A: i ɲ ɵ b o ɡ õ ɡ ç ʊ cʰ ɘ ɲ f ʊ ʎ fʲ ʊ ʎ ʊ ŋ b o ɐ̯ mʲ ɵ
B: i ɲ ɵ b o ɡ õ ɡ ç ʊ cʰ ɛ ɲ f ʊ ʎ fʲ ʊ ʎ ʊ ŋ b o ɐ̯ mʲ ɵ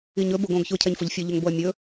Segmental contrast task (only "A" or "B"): B